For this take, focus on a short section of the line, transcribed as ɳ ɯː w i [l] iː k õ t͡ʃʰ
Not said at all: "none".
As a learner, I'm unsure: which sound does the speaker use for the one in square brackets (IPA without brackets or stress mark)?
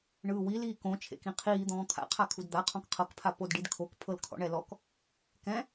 l